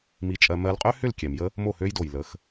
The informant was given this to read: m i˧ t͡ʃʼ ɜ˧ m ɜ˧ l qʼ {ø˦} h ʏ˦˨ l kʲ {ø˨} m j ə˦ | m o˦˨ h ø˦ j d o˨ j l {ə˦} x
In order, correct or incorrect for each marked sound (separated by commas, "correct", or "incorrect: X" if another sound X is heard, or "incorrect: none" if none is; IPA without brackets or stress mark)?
correct, incorrect: ɛ˨, incorrect: ə˨˦